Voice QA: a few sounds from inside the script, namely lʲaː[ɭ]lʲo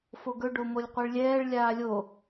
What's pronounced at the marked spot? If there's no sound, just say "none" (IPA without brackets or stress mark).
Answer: none